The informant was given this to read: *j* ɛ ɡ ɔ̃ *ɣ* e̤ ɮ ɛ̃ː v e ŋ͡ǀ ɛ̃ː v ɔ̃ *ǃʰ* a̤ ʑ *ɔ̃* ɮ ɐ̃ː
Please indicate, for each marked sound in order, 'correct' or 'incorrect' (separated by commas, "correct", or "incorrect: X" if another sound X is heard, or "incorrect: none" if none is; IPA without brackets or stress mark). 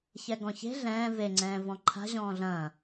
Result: incorrect: ç, incorrect: ç, correct, incorrect: ɔ̃ː